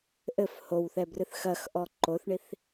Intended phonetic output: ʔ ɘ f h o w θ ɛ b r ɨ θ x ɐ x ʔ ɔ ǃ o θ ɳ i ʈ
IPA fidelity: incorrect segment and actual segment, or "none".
ʈ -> θ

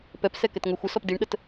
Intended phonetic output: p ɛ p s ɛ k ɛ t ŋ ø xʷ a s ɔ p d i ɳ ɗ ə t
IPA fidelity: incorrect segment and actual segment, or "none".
a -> ə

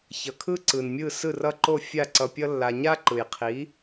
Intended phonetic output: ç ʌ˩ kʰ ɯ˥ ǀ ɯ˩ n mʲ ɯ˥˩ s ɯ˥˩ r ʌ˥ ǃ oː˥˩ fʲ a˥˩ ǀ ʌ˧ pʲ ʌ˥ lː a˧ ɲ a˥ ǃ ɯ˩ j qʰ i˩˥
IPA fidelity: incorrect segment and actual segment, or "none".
oː˥˩ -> o˥˩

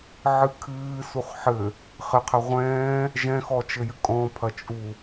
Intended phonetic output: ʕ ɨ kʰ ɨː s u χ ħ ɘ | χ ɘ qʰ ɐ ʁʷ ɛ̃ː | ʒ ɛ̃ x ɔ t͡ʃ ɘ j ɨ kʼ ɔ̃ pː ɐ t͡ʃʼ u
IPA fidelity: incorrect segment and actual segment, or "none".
pː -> pʰ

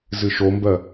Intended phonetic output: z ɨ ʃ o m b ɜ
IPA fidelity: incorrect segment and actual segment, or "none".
none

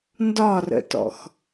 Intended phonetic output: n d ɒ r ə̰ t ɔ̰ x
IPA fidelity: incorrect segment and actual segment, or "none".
none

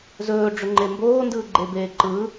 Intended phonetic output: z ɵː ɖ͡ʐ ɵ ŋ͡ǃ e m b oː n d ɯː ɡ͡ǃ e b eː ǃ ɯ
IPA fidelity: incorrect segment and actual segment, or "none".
none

